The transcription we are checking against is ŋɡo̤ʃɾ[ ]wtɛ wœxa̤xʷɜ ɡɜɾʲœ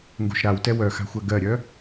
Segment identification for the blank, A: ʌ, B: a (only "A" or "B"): B